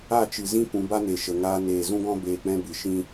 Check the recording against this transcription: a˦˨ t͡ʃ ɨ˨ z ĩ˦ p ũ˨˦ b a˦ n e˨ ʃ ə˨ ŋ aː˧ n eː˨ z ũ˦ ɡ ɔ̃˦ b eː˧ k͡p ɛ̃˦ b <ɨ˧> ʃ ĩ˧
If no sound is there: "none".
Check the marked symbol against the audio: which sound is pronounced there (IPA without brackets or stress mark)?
ɨ˨